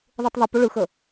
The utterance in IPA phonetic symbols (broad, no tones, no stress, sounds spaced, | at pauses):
ðˤ ɯ tˤ ðˤ i p ʏ ɭ ɯ x ə